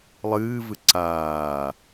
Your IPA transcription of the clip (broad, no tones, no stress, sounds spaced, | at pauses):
lˠ ɨː v ɨ ǀ aː